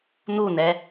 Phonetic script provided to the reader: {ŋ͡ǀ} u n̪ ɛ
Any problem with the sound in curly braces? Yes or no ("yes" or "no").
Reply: yes